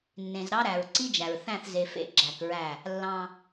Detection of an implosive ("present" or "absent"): absent